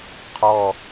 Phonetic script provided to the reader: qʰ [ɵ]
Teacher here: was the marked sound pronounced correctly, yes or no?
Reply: no